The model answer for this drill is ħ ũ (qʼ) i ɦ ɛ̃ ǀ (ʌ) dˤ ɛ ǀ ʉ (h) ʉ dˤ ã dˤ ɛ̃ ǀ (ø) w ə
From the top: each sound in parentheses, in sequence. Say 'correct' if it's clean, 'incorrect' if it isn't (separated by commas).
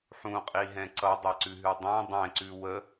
correct, correct, incorrect, incorrect